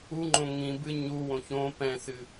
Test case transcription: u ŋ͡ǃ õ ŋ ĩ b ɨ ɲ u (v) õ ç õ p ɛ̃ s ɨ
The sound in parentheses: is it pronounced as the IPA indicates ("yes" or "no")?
no